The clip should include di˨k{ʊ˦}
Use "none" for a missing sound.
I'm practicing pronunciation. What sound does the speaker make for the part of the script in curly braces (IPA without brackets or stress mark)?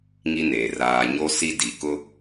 ʊ˦